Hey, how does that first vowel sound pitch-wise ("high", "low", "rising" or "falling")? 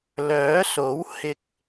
rising